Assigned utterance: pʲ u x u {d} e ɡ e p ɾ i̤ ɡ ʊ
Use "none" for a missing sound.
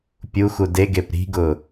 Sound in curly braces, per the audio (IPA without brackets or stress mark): d